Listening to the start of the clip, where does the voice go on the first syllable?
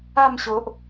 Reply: falling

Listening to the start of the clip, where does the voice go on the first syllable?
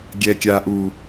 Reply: low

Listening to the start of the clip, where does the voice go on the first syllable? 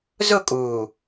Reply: falling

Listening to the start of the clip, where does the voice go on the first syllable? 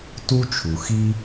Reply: high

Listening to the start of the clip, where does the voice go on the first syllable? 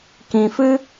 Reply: low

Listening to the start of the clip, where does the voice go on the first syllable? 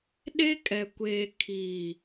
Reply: high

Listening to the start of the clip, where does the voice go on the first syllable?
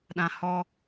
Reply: low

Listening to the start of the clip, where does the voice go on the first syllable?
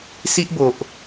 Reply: high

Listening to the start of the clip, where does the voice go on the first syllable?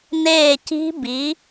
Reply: falling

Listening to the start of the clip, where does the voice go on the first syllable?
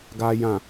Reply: low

